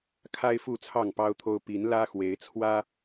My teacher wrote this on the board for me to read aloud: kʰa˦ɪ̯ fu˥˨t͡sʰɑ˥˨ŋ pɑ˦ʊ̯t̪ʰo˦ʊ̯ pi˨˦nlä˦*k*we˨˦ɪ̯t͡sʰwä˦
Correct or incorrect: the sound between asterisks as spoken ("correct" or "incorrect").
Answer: incorrect